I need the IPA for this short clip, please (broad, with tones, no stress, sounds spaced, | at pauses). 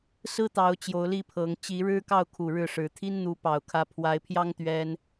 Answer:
s ɹ̩˦ t̪ ɑ˨˦ ʊ̯ t͡ɕ j o˨˦ ʊ̯ l i˥˨ pʰ ɤ˨˦ ŋ t͡ɕ i˨˦ ɻ ɻ̩˦ k ɑ˥˨ ʊ̯ kʰ u˨˩ ɻ ɻ̩˥˨ ʂ ɻ̩˨˦ t̪ʰ i˦ n n̪ u˨˦ p ɑ˨˩ ʊ̯ kʰ ä˨˦ pʰ w a˨˦ ɪ̯ pʰ j ɑ˦ ŋ t̪ ɥ ɛ˦ n